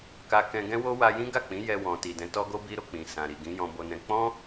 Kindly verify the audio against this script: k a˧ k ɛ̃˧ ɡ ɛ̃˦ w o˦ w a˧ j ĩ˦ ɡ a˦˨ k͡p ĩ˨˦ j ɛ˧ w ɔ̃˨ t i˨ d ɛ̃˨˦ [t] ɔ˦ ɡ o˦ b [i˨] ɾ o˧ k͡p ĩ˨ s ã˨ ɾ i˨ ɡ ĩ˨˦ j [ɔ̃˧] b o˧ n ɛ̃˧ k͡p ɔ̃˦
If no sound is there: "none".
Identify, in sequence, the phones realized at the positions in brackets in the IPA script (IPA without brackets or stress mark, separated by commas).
t, i˦, ɔ̃˧